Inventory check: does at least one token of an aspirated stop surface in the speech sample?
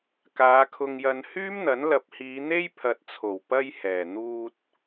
yes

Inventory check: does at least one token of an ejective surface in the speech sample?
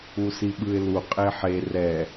yes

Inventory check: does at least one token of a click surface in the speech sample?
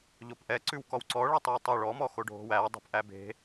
yes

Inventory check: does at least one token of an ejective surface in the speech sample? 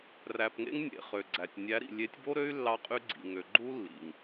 yes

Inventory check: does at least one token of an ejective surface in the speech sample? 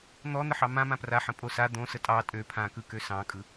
yes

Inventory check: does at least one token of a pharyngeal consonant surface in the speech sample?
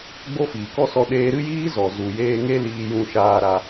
no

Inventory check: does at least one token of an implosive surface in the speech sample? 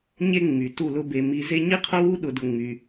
yes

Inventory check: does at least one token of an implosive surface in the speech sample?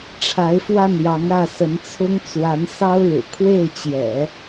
no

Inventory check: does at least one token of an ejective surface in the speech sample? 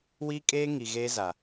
yes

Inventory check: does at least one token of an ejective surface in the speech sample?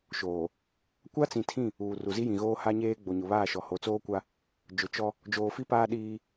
no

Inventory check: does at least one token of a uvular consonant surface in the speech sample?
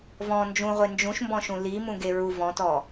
yes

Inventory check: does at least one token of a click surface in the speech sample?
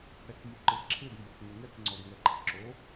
yes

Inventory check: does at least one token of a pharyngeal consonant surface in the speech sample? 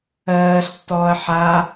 yes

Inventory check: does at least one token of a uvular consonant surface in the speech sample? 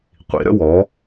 yes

